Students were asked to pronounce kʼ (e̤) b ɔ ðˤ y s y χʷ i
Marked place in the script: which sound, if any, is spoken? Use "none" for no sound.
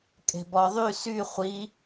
e̤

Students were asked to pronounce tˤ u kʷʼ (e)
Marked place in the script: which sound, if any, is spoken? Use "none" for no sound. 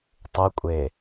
e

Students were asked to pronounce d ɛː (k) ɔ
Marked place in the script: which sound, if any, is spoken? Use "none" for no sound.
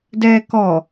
k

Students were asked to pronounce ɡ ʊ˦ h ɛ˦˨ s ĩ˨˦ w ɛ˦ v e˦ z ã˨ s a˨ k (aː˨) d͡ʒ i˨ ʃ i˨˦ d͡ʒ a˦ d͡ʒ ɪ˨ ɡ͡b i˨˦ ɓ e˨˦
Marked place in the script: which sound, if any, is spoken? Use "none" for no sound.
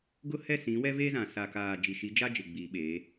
aː˨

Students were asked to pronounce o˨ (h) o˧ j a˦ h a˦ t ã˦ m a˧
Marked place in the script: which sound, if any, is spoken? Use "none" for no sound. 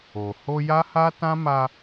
h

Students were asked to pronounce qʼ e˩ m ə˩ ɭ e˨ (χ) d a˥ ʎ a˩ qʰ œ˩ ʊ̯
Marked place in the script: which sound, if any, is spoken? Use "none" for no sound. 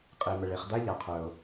χ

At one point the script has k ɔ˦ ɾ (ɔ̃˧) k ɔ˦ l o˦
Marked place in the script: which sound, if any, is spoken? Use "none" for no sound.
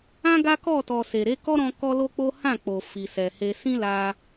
ɔ̃˧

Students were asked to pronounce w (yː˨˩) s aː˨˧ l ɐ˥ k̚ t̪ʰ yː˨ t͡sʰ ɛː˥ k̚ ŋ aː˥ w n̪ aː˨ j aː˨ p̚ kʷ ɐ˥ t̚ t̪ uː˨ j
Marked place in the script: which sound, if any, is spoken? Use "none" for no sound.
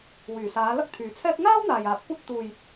yː˨˩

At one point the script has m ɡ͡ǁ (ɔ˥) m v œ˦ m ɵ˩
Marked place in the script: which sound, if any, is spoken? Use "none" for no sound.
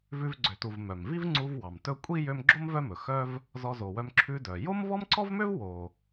o˥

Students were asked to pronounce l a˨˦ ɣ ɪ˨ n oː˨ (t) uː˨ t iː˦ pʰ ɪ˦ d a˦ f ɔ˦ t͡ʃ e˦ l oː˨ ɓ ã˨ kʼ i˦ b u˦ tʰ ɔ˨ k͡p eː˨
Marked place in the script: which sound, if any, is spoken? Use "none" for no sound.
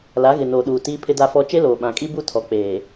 ɗ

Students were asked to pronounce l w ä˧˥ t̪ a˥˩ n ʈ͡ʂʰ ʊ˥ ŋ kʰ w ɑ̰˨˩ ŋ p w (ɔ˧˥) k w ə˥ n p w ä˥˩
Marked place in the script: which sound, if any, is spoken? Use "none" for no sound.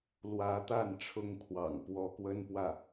ɔ˥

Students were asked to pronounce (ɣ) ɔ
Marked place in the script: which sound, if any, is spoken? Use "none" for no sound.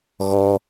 ɣ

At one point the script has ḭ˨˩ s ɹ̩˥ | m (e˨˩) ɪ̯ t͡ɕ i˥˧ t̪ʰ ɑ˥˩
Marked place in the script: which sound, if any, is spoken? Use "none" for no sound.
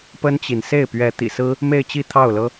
e˥˧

